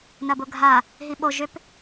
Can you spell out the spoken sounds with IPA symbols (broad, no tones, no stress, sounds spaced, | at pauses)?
n ɐ b ʊ ɡʱ a | ɦ i ɓ o ʒ ʏ p